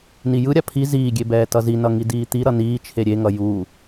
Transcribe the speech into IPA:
n i j ɯ ɾʲ a pʰ i z iː ɡʲ e b ɛː t ʌ z i n ʌ ŋ i d iː t̪ i ɾ ʌ n iː t͡ʃʰ e ɾʲ e ŋ ʌ j u

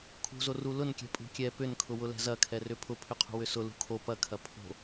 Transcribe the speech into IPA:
kʰ ṳ z o r u l ʊ n kʲ ɛ̤ pʼ ṳ kʲ ɛ p ʏ n kʰ ʊ w ʊ l ɛ̤ z ɐ kʰ ɛ r ʏ pʰ ʊ pʰ ʏ qʰ ṳ w ʏ s ʊ l ṳ kʰ o p ɐ kʰ ɐ pʰ o̤

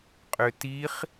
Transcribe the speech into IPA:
qʼ ø t i χ

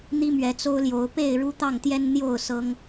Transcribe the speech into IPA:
n̪ i˦ m ɥ ɛ˨˦ t͡s o˦ ʊ̯ l j o˨˦ ʊ̯ p e˥˨ ɪ̯ ɻ u˦ t̪ ɑ˥˨ ŋ t̪ j ɛ˦ n n̪ j o˥˨ ʊ̯ s ɤ˦ ŋ

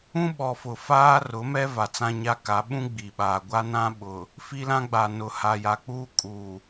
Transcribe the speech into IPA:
ũ˦ ɓ ɔ˨ f ʊ˨ f aː˦ r ʊ˨˦ m ɛ˦ v a˨ t͡s ã˦ ɲ a˦ k a˨˦ ɓ ũ˦ ɡ͡b i˨ ɓ aː˨ ɡʷ a˦ n ã˦ ɓ ʊ˨ | f i˦ l ã˦ ɡ͡b a˨ n ʊ˨ h a˨ j a˨ k͡p uː˦ kʼ uː˨

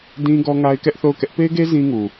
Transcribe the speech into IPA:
d ĩ˦ ɡ ɔ˦ ŋ a˦ ɪ̯ k ɛ˦ ʔ θ o˦˨ ʊ̯ k ɛ˦ ʔ p e˦ ɪ̯ ɡ e˦ z ĩ˦ ŋ u˨

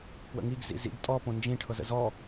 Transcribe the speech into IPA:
p w ə̰ ŋ i ɡ z ḭ z ḭ ɡ tʼ ɔ p õ n d͡ʒ ĩ ʈʰ ɤ z ə̰ z ɔ

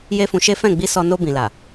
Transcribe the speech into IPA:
j e˦ f ũ˧ ʃ e˦ f ɛ̃˦˨ ɡ͡b i˧ s ɔ˧ n o˧ b ĩ˨ l a˨

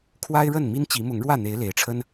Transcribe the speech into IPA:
kʰ w a˦ ɪ̯ ɻ ə˥˨ n m i˦ n t͡ɕ i˨˦ m ʊ˨˦ ŋ ɻ w ä˥˨ n̪ e˨˦ ɪ̯ l e˨˦ ɪ̯ ʈ͡ʂʰ ə˦ n

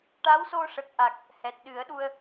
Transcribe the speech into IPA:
ʈ a˧˥ w s o˧ ʂ ə˨˩ k̚ ʔ a˨˩ k̚ | h ɛ˨˩ t̚ ɗ ɨ˨˩˦ ə̯ ɗ u˧ ə̯

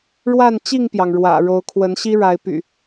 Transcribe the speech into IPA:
ɻ w a˥˨ n t͡ɕ i˥˨ ŋ p j ɑ˩ ŋ ɻ w ä̰˨˩ ɻ o˨˦ ʊ̯ kʰ w ə˨˦ n ɕ i˦ ɻ a˨˦ ɪ̯ p y̰˨˩

